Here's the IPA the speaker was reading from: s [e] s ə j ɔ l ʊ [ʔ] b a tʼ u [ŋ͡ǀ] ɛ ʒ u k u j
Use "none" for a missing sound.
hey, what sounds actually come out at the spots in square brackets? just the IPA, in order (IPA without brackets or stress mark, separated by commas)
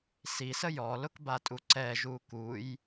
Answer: i, k, ǀ